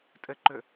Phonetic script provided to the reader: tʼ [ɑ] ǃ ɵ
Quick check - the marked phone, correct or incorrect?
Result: incorrect